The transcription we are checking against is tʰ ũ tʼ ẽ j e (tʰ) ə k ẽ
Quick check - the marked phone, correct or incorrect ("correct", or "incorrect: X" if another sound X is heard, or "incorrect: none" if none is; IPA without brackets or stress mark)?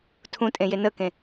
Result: incorrect: n